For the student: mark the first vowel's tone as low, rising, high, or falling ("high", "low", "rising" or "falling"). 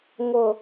low